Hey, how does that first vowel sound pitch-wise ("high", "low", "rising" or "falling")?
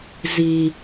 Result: low